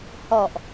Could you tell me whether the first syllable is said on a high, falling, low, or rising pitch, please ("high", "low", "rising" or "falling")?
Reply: low